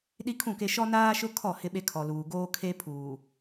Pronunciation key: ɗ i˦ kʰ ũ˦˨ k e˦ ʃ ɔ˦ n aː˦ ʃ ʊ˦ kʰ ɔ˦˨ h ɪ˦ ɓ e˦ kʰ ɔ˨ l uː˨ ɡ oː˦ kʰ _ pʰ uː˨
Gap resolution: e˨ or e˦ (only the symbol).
e˦